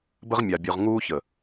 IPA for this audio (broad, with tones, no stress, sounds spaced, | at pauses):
b ə˦ ʁ mʲ a˨ bʲ ʉ˨ ʁ ŋ uː˦ ç ə˨